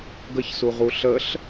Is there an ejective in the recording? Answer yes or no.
no